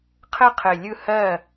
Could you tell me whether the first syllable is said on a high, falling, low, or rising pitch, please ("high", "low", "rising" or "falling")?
high